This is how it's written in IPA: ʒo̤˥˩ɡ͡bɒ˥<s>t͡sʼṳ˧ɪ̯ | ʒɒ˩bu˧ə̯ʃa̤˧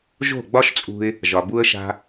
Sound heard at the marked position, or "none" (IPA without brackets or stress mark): ʃ